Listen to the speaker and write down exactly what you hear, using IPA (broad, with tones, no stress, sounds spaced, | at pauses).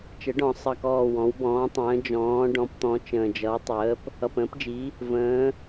t͡ʃ ə˩˥ ɖ ɔ̃˨˩ sˤ ʌ˨˩ k ɔː˨˩ w ɔ̃˩˥ w b ɔ̃ː˩˥ tˤ ə̃ː˩˥ d͡ʒ ɔ̃ː˩˥ ɖ ɔ̃˩˥ p t̪ ɔ̃˩˥ t͡ʃ ə̃ː˨˩ d͡ʒ ʌ˩˥ w tˤ əː˩˥ p | ʌ˨˩ p ə̃ː˩˥ p d͡ʒ i˩˥ | v ə̃ː˩˥